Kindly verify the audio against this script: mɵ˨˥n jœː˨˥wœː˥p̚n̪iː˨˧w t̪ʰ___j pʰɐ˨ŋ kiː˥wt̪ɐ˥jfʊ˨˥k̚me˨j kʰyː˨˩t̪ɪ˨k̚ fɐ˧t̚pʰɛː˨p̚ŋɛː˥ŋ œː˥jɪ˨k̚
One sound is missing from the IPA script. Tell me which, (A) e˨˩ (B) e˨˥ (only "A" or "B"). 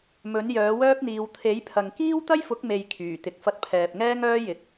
B